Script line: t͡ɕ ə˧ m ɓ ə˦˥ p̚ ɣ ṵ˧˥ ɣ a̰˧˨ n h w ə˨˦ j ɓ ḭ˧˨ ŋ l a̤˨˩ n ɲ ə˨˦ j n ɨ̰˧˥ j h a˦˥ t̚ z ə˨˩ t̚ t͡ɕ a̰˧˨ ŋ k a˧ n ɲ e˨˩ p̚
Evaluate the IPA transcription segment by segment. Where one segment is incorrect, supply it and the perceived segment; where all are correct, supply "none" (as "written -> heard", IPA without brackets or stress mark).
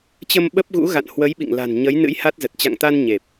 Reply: k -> t̪